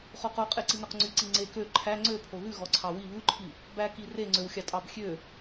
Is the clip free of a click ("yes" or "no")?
no